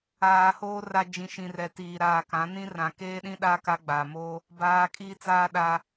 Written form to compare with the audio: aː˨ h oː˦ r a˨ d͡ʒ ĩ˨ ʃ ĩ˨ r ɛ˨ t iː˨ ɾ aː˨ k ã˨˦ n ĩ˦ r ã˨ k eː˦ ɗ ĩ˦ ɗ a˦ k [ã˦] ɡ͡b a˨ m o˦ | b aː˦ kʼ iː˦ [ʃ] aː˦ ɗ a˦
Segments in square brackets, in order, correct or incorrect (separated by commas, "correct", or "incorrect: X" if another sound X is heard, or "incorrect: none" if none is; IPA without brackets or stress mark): incorrect: a˦, incorrect: t͡s